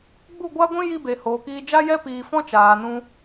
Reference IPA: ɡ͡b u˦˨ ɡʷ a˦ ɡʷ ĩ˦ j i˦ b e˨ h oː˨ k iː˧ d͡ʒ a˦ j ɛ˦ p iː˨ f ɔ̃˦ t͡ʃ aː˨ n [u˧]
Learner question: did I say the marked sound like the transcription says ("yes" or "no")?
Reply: no